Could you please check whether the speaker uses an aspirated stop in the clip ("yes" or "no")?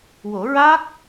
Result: no